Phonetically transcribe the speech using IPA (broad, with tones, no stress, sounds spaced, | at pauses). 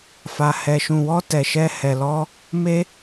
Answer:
f a˧ h ɛ˧ ʃ ũ˧ w ɔ˦ t ɛ˧ ʃ ɛ˦ h ɛ˧ l ɔ˦ | m e˦